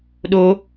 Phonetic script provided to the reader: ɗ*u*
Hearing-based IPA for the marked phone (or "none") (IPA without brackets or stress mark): o